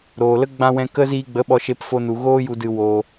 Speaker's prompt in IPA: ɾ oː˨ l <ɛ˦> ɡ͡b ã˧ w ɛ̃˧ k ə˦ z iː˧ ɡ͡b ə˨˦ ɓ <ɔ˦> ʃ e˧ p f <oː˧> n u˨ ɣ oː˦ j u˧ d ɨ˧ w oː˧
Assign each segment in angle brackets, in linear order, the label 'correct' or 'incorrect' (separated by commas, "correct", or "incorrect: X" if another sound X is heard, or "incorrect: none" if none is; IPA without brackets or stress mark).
incorrect: ə˦, incorrect: ɔ˧, incorrect: o˧